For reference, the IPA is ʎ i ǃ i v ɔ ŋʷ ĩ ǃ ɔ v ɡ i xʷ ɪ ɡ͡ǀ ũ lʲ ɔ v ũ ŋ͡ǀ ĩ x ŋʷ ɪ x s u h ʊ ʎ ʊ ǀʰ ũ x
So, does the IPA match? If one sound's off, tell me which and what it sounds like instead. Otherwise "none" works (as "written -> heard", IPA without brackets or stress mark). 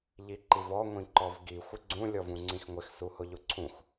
none